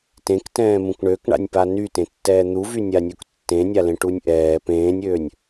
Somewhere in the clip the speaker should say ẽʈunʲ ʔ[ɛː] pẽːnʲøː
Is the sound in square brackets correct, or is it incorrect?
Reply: correct